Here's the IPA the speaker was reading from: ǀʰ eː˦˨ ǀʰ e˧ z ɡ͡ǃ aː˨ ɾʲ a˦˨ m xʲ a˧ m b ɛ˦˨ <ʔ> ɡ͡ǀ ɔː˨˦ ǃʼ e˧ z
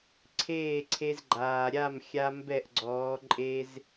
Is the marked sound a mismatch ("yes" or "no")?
no